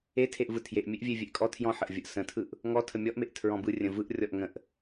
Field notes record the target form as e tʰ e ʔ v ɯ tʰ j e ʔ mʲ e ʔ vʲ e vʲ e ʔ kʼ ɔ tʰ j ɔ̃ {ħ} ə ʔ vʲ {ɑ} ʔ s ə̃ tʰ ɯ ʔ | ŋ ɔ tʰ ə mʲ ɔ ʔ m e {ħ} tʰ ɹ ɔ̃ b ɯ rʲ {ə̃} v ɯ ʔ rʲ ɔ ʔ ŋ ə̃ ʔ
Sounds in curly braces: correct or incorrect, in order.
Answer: correct, incorrect, incorrect, correct

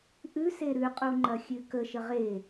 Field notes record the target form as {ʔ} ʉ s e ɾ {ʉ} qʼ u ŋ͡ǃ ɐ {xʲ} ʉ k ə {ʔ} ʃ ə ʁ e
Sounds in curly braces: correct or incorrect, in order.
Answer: correct, correct, correct, incorrect

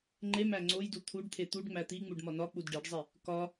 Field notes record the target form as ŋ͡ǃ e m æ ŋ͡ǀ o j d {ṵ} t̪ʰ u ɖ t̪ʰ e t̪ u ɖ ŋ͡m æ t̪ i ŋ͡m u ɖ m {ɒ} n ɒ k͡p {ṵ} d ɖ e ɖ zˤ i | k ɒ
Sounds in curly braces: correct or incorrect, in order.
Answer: incorrect, correct, incorrect

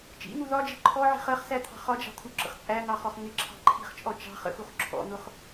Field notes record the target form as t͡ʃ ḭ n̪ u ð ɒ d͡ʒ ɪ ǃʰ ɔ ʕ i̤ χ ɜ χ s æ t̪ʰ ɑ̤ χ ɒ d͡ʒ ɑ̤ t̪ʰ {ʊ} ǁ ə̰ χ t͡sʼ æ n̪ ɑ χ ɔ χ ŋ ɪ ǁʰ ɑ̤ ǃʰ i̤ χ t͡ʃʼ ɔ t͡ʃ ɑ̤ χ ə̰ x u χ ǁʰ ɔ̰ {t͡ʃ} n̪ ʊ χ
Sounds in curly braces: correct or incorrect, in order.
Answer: incorrect, incorrect

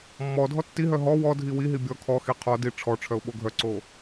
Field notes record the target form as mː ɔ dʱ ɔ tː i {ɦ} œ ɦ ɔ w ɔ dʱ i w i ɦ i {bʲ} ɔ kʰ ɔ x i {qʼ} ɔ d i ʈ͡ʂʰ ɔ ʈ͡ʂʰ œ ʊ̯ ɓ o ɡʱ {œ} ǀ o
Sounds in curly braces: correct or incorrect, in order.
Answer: correct, correct, incorrect, correct

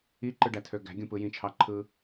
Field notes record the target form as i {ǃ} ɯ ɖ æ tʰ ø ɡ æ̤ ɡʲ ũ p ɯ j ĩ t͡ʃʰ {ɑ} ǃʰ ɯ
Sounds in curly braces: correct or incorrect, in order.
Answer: correct, correct

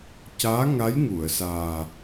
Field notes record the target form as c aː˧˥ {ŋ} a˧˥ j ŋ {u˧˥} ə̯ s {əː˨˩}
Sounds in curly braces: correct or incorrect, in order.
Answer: correct, incorrect, incorrect

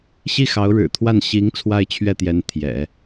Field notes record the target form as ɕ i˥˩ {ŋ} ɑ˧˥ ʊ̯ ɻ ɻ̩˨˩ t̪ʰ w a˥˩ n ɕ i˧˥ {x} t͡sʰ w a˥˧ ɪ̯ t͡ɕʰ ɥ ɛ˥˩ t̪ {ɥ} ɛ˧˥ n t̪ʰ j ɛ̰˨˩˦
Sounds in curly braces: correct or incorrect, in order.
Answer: incorrect, incorrect, incorrect

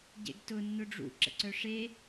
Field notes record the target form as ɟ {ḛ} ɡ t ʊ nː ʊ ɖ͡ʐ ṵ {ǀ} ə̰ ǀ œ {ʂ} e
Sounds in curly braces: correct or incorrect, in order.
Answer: correct, incorrect, correct

